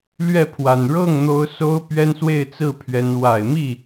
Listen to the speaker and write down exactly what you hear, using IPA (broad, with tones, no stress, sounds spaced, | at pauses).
l ɥ ɛ˥˩ pʰ w a˨˩ n ɻ ɤ˥˩ ŋ n̪ o˧˥ ʊ̯ s o˥ ʊ̯ p ɥ ɛ˥ n s w e˥˧ ɪ̯ t͡s ɹ̩˥˩ pʰ ɥ ɛ˧˥ n w a˨˩ ɪ̯ m i˥˩